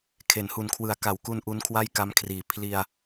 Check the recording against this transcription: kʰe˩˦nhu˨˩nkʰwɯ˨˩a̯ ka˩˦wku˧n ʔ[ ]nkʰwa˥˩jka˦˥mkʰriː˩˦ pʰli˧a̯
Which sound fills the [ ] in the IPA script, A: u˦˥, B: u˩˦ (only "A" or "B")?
A